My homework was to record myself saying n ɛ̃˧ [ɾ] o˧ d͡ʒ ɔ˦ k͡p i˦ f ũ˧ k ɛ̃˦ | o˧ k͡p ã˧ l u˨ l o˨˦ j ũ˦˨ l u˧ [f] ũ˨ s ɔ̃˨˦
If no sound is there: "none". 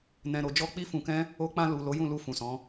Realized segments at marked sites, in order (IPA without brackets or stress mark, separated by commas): ɾ, f